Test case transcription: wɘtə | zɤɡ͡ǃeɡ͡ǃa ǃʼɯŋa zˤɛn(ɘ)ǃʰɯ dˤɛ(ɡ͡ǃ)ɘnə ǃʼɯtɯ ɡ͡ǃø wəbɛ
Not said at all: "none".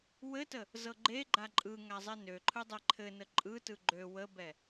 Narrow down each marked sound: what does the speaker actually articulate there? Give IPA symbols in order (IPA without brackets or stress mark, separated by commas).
ø, ǃʰ